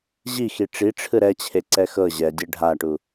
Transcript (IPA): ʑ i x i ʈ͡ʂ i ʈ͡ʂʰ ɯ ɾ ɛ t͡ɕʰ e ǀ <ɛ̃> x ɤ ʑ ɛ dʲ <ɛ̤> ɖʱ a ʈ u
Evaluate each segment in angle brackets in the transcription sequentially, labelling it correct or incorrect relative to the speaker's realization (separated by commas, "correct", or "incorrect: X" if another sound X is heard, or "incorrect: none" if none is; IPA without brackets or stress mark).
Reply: incorrect: ɛ, incorrect: ɛ